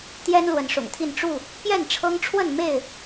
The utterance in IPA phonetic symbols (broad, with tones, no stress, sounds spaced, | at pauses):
t̪ j ɛ˦ n l w ə˨˦ n ʂ ʊ̰˨˩ ŋ t̪ʰ i˥˨ n ʈ͡ʂ u˥˨ | p j ɛ˥˨ n ʈ͡ʂʰ ɤ˦ ŋ ʈ͡ʂʰ w ə˥˨ n m e˥˨ ɪ̯